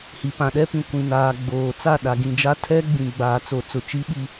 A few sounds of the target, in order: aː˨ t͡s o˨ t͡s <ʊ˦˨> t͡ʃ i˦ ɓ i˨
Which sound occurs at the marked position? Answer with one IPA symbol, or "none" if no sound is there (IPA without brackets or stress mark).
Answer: ʊ˨